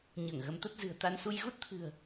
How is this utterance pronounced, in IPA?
ɲ əː˧˩ ŋ ɣ ə˨˦ m t̪ ə˦˥ t̚ z ɨ̤˨˩ ə̯ t̪ a˧ n s u˧ j ɣ u˦˥ t̚ t̪ʰ ɨ̤˨˩ ə̯

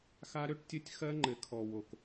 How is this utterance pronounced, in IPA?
x a˦ ɾ ø˦ ʈ tʲ ə˦˨ tʲ x ɜ˦ ŋ͡ǃ ɘ˨ kʰ ɔ˨ w o˨ k

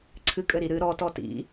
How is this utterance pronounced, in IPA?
ǀʰ ɨ kʼ ɘ ɾ i ɾ ɨ ɾ ɔ t ɔ t ḭ

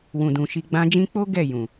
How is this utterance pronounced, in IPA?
w ũ˨ d ũ˨ ʃ i˧ ɡ͡b ã˧ d͡ʒ ĩ˧ k͡p o˦ ɡ ɛ˦˨ j ũ˨

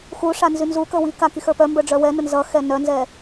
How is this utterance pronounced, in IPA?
x u ʂ a n z y n z u k ə w i k a k i x ə˞ p œ m b ə˞ ɖ͡ʐ œ w ɛ n ə n z ʌ x ɛ n œ n z ɛ

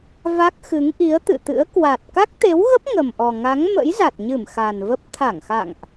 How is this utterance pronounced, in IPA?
v a˦˥ k̚ x ɨ˨˦ ŋ ʔ i˨˦ ə̯ t̪ ɨ̰˧˨ t̪ ɨ̰˧˥ ə̯ k w a˨˩ t̚ k a˦˥ k̚ t̪ e˨˦ w ɣ ə˦˥ p̚ ŋ ə˨˩ m ʔ ɔ˨˩ ŋ a˨˦ ŋ m ə̰˧˥ j z a˨˩ t̚ ɲ ɨ˧˩ m x a˨˩ n v ə˦˥ p̚ t̪ʰ a˧˩ ŋ x a̰˧˨ ŋ ʔ

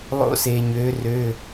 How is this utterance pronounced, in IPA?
lˠ o̰˥ s e˧ ɲ ø˧˥ r ø˧˥˧

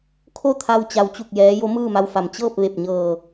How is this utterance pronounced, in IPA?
kʰ o˥˨ t̪ʰ a˧ w t͡ɕ a˧˥ w t͡ɕ u˥˨ k̚ j ɛː˧˥ j o˧˥ m ɯː˥˨ m a˧ w f a˩ m t͡ɕ ɤː˥˨ p̚ ʋ e˧˩ p̚ ɲ ɤː˧˩

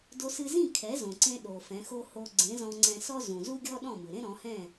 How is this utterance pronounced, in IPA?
d o˧ s ɨ˧ z ĩ˥˩ kʰ ɛ˩˥ z õ˩ ǀ ẽ˧ ɗ o˩ f ɛ̃˩˥ x o˥ h o˧ ɡ͡ǀ ẽ˩˥ z ɔ̃˧ ŋ͡ǀ ɛ̃˧ s ɔ˥ z ũ˩ z u˥ ɡʲ ɔ˥ ɗ ɔ̃˥˩ m ɨ˩ ɾ ẽ˥ ɾ ɔ̃˩˥ h ɛ̃˥˩

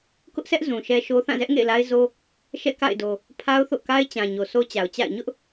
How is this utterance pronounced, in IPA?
k ʊ˦ ʔ s ɛ˦ ʔ z ũ˨ ʃ ɛ˦ ʃ o˦ θ ã˦˨ z ɛ˦ ʔ ŋ ḛ˦˨ ɪ̯ l a˦ ɪ̯ z o˦ | ʃ ɛ̰˦˨ k a̰˦˨ ɪ̯ d o˨ | pʰ a˦ ʊ̯ θ o̰˦˨ k a˦ ɪ̯ t͡ɕ ã˨ ɲ o˨ s o˦ t͡ɕ a˨ ʊ̯ t͡ɕ a̰˦˨ ɪ̯ ɲ ʊ˦ ʔ

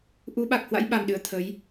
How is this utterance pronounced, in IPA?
ʔ u˨˦ ɓ a˨˩ k̚ h w a̰˧˥ j ɓ a˨˩ m ɗ ɨ˧˩ ə̯ t̪ʰ ə˨˦ j

